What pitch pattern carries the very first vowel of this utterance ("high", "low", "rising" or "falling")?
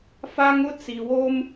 high